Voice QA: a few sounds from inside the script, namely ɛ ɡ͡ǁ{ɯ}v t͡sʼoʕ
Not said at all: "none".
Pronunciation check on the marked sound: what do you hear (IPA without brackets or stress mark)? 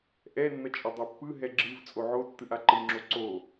ɯ